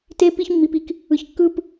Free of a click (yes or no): yes